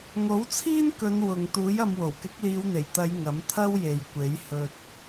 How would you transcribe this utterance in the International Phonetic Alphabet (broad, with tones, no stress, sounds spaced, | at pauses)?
ŋ o˨˥ w t͡sʰ iː˥ n k ɵ˨˧ n w ʊ˨ ŋ t̪ uː˨˥ j ɐ˧ m w o˨˩ w k ɪ˨˥ k̚ l iː˨˧ w n̪ e˨˩ j t̪ ɐ˨˧ j ŋ ɐ˨˥ m t̪ʰ ɐ˥ w j e˨ j kʷ e˨˥ j h ɵ˧ t̚